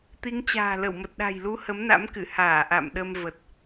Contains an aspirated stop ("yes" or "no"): no